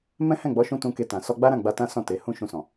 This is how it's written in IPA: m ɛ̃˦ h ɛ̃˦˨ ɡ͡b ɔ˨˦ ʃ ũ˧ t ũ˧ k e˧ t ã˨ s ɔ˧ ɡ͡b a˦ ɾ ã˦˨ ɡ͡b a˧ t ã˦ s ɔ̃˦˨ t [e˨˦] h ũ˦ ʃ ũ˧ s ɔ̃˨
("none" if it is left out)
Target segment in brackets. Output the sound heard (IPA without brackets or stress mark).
e˨˦